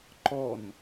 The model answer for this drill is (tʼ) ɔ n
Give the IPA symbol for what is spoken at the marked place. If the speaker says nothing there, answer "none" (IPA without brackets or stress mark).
ǃ